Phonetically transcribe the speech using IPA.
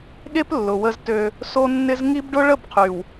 ɠ e˦ p lː ʊ˨ w ə˦ z t ø˦ | s o˦ nː ɪ˦ z ŋ i˦ b ɖ ʊ˦ ɭ ə˦˨ b qʰ y˨ w

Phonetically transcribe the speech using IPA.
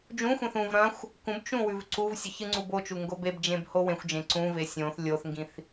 d͡ʒ ũ xʷ ẽ θ ũ v ɾ ɐ̃ xʷ | k ũ b t͡ʃ ũ w ʉ v ǀ u v sʲ ɵ ç ɨ ŋ͡ǀ u b o t͡ʃ u ŋ ɡ o b e b d͡ʒ ẽ b h o w ẽ xʷ d͡ʒ ẽ ǀ ũ v e sʲ õ θ lʲ o θ ŋ ɡ ĩ θ

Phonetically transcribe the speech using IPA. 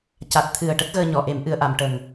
c a˨˩ t̚ t̪ʰ ɨ˨˩ ə̯ ʈ ə˦˥ k̚ ɣ əː˧ ɲ ɔ˨˩˨ ʔ e˨˩˦ m ʔ ɨ˨˩˨ ə̯ ʔ a˨˩˨ m ʈ ə˨˩ ŋ

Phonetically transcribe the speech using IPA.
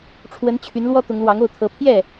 ʈ͡ʂʰ w ə˧˥ n t͡ɕʰ y˧˥ n l w ɔ˥ t̪ ʊ˧˥ ŋ l w ɑ˧˥ ŋ o˥˩ ʊ̯ t̪ʰ ɤ˧˥ pʰ j ɛ˥˩

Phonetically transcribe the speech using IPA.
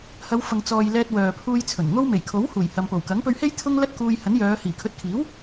h ɐ˨˧ w f ɐ˨ ŋ t͡s ɔː˨ j l ɛː˧ t̚ w œː˨ pʰ uː˧ j t͡sʰ ɵ˨˩ n ŋ o˥ w m e˨˩ j kʰ o˨˥ w h uː˨˩ j h ɐ˨ m p o˨˩ w k ɐ˨˥ ŋ p ɵ˧ ɥ h e˥ j t̪ʰ ʊ˥ ŋ l ɐ˥ t̚ k uː˧ j h ɐ˨˥ n j œː˨˧ h iː˨˩ kʰ ɵ˨˥ t̚ kʰ iː˨˥ w

